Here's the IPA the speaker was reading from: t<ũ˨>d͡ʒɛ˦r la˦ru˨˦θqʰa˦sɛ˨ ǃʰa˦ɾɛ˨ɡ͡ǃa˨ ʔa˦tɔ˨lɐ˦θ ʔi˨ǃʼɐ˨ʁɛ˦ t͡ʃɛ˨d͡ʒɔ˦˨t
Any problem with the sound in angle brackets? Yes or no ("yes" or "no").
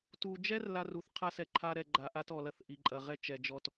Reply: yes